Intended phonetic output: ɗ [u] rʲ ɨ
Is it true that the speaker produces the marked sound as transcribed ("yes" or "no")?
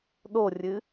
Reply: no